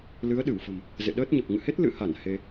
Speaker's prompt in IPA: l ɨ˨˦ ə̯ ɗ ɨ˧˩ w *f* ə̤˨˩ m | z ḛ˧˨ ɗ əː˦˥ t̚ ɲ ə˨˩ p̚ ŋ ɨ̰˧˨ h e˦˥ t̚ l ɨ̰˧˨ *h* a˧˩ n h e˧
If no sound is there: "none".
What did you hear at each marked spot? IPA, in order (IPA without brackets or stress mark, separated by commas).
f, h